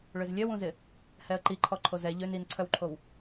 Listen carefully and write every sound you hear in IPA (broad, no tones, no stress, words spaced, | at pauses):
ɭøzlʲœwũzɪ | hɛə̯ǃiǃʰɔ ǃʰozɛ ʎøn inǀʰœwǃʰow